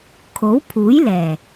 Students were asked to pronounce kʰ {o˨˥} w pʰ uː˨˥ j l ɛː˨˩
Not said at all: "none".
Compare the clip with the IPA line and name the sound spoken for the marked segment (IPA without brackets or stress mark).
o˨˥